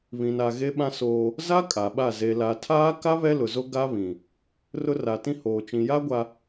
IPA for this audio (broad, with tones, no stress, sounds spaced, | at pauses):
β ĩ˨ n a˨ ɣ e˦ ɓ ã˦ s oː˦ | z a˦ kʼ a˨ ɓ a˦˨ z e˨ l a˨ tʰ aː˦ k a˦ β ɛ˦ l ʊ˨ z o˦ ɡ a˦ β ĩ˨ | r ʊ˦ r a˨ t ĩ˦ h oː˨ t͡ʃ ĩ˨ j a˦ ɡʷ a˨